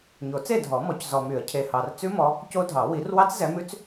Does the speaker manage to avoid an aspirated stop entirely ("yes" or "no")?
no